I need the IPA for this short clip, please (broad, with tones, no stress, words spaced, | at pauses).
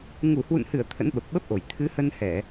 ŋu˧˩hwṵ˧˨nhɨ˧˩ə̯ t̪ʰə̰˧˥nɓə˨˩p̚ɓə˦˥p̚ʔo˧˩j t̪ʰɨ˨˦hə˧nhɛ˧˩˨